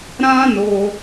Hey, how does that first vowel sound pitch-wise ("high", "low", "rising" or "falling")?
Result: high